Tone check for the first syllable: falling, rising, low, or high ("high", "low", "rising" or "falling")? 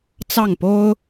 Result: falling